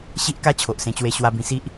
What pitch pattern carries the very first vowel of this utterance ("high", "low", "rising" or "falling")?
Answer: high